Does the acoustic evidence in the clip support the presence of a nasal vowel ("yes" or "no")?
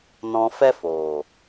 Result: yes